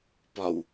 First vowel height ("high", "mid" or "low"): low